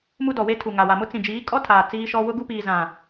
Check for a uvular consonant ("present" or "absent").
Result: absent